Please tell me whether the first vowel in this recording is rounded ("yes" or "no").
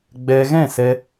no